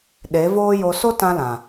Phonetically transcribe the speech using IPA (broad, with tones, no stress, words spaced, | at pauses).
ɗe˨˦voː˦jo˧ so˦tã˧lã˨